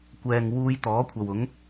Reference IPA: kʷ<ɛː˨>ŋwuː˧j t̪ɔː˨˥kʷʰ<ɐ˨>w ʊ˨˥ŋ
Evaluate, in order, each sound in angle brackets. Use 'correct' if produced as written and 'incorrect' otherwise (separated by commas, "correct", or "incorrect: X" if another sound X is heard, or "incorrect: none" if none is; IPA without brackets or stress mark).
correct, correct